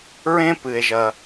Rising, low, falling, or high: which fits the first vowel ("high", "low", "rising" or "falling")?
high